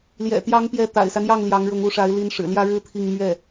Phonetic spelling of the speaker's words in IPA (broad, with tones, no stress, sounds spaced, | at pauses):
l j ɛ̰˨˩ t̪ j ɑ˧˥ ŋ p j ɛ˧˥ t̪ a̰˨˩ ɪ̯ s a˦ n j ɑ˥˩ ŋ l j ɑ˧˥ ŋ ɻ ʊ˧˥ ŋ u˧˥ ʂ a˧˥ ɪ̯ l i˧˥ n ʂ ɻ̩˨˩ l j ä˥ ɻ ɻ̩˥ t̪ʰ i˥˧ ŋ m ɥ ɛ˥˩